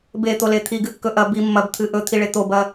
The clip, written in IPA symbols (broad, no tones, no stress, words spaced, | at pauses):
bet̪ole t̪ʰiɡɨkːɵ ʔɐ bi mːɐbt̪ʰɨ ʔɵt̪ʰiɭe t̪obɐ